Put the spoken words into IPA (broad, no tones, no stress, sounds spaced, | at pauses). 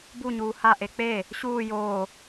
b u ɲ uː h a ʔ e k͡p e | ɕ uː j oː